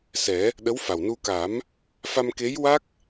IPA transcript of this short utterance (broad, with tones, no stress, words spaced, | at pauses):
sɛ˨˩˦ | ɗə˧˥wfa˨˩wnu˧ka˨˩˦m | fa˧mke˧˥jwa˦˥k̚